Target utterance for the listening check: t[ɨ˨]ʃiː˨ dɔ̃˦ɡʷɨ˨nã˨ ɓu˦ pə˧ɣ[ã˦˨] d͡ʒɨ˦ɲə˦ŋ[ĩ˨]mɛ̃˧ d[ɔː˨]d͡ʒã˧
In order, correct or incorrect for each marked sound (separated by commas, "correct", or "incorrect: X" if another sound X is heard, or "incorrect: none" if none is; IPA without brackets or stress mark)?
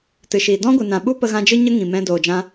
correct, incorrect: ã˧, correct, incorrect: oː˨